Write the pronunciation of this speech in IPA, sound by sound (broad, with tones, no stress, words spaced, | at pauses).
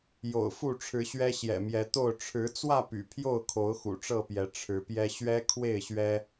jo̰˨˩ʊ̯fu˥˨ʈ͡ʂʰɻ̩˨˦ɕɥɛ˦ ɕjɛ̰˨˩mjɛ˨˦t̪o˥˨ʊ̯ ʈ͡ʂʰɻ̩˨˦t͡swä˥˨ py̰˨˩pʰjo˥˨ʊ̯kʰo˨˦ʊ̯ xṵ˨˩ʈ͡ʂɤ˥˨pjɛ˨˦ ʈ͡ʂʰɻ̩˨˦pjɛ˦ ɕɥɛ˦kʰwe˥˨ɪ̯ɕɥɛ˦